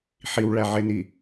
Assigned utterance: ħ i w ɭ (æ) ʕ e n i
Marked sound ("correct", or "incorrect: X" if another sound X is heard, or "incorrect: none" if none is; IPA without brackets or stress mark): correct